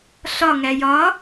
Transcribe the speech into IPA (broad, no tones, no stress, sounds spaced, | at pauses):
ɬ ɒ ŋ æ j ɒ